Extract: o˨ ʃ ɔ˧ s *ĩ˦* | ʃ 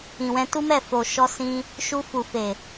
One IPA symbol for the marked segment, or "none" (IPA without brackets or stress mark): ĩ˧